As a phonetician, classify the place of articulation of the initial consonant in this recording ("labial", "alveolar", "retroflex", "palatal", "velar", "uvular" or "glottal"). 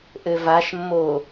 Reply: glottal